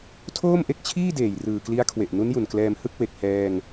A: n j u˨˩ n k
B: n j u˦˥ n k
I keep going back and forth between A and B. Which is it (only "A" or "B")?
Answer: A